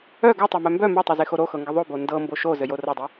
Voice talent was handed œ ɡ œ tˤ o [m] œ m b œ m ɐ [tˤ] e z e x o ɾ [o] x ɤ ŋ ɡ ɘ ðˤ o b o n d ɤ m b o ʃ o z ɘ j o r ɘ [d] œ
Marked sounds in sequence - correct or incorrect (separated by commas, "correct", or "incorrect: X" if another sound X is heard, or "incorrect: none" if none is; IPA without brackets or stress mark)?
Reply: correct, correct, correct, incorrect: dˤ